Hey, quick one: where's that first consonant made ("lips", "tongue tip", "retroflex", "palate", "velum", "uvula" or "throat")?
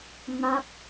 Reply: velum